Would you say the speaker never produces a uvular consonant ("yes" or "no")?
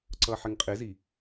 no